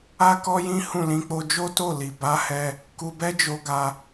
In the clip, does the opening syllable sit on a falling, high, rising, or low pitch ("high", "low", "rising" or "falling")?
high